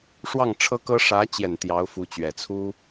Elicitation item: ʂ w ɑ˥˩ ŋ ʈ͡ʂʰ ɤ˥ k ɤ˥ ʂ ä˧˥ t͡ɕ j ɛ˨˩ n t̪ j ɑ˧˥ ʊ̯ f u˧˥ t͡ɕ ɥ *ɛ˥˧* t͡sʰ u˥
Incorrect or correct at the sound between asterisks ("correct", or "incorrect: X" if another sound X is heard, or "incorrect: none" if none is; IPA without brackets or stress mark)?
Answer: incorrect: ɛ˨˩